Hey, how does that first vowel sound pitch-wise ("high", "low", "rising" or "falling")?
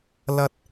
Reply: high